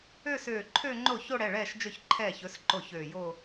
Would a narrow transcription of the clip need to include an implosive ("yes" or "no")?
no